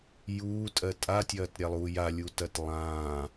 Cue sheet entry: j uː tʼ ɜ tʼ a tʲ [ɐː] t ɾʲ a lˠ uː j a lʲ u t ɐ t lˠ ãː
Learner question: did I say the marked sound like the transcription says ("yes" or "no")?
yes